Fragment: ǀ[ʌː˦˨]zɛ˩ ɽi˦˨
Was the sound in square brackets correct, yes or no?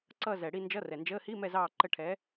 no